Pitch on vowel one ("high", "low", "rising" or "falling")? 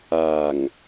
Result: low